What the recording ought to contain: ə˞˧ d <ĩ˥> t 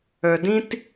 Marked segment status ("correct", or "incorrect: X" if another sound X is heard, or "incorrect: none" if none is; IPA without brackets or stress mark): correct